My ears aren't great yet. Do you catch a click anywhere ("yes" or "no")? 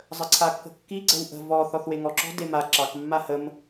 yes